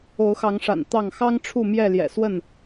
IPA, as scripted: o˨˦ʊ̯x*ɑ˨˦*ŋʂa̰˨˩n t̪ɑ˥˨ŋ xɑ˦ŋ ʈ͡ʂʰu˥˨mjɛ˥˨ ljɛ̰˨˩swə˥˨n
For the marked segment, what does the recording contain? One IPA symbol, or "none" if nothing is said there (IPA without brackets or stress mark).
ɑ˨˦